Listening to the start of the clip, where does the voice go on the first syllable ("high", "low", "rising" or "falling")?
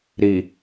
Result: low